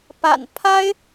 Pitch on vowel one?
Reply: low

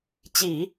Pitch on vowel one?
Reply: low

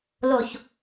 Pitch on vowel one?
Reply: low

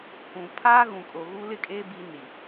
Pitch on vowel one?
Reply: low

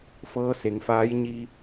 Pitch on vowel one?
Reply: rising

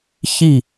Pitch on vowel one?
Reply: falling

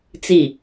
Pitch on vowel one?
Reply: low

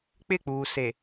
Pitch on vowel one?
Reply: falling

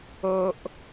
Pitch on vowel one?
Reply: high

